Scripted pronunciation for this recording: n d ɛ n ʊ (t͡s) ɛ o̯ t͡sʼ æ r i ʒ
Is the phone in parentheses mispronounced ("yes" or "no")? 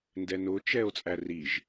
yes